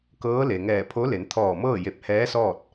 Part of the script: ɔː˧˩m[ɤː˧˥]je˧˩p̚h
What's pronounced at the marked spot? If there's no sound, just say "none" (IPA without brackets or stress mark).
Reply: ɤː˥˨